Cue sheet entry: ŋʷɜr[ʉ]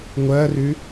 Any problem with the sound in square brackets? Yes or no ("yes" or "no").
no